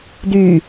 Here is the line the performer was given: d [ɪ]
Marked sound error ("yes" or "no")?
yes